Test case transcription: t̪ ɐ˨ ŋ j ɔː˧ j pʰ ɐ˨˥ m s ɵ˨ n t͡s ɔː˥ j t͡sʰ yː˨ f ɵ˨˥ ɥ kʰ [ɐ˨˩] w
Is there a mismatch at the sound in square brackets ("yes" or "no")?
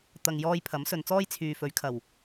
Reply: no